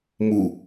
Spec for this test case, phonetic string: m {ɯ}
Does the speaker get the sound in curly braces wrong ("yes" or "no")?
yes